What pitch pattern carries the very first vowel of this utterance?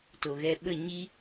low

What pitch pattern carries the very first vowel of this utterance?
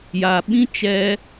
low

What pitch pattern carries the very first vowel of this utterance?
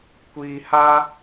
low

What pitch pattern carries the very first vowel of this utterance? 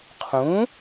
rising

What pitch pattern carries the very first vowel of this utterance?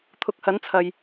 rising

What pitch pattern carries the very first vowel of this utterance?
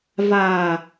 low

